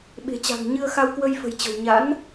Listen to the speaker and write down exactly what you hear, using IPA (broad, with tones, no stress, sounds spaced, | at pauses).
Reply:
ɓ e̤˨˩ t͡ɕ a̤˨˩ ŋ ɲ ɨ˧ ə̯ x a˧ w k w ə˧ j f ə̤˨˩ j t͡ɕ ə̤˨˩ w ɲ a̰˧˥ n